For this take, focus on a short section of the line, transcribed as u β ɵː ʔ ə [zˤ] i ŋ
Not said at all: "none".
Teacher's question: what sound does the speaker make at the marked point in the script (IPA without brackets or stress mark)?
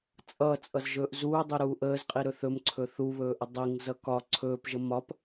dˤ